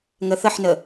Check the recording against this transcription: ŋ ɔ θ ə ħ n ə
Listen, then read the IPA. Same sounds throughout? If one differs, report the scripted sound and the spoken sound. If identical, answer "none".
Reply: ɔ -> ə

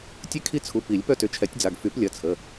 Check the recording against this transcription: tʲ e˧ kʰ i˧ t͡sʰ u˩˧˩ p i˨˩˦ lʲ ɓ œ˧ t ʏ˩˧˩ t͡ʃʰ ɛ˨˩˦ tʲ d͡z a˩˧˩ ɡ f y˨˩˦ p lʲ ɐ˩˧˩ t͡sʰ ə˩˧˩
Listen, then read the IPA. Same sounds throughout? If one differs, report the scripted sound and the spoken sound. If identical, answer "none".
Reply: ɓ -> p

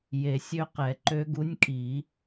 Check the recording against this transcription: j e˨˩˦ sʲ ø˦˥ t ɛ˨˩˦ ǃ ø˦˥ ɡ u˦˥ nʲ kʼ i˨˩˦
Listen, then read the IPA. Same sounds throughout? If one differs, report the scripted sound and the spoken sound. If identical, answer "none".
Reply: t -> q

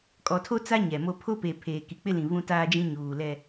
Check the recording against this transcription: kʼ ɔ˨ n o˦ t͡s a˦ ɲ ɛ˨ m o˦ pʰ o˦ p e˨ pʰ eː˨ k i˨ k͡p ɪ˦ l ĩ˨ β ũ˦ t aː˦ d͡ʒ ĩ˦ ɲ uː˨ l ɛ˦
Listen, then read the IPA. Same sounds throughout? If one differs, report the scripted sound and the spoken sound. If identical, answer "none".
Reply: n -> tʰ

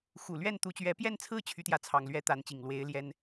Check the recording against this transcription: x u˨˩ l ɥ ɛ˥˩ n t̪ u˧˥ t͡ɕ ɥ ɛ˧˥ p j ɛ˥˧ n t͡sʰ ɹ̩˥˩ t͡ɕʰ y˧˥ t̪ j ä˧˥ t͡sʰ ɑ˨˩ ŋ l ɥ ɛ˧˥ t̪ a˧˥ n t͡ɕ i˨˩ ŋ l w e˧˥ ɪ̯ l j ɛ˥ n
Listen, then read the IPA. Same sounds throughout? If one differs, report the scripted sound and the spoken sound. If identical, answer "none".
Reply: none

